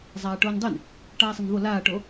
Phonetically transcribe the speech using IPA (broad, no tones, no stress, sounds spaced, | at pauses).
zˤ aː ʈ oː n dˤ e n | ʈ aː sˤ ɪ n v o l aː ʈ o